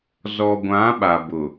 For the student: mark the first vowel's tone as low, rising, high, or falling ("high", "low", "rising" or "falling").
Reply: low